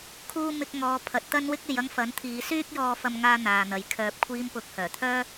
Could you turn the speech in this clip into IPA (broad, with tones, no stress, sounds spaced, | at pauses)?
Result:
kʰ uː˥ m ɪ˧ k̚ ŋ ɔː˨˧ pʰ ɐ˨˥ t̚ t̪ ɐ˥ n w ɪ˥ k̚ e˨ j ɐ˥ ŋ f ɐ˨˥ n t̪ʰ iː˨˧ s yː˥ k̚ j ɔː˧ f ɐ˥ m ŋ aː˥ n̪ aː˨ n̪ ɐ˨˧ j kʰ œː˨ p̚ kʷʰ iː˧ m p ʊ˨˥ k̚ h œː˨˩ t̪ʰ œː˥